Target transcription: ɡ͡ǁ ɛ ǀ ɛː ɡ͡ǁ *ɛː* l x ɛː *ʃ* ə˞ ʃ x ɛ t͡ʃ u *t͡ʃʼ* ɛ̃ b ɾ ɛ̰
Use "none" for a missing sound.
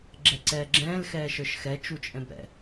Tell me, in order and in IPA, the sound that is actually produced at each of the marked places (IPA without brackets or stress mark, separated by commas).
ɛ̃ː, ʃ, t͡ʃʼ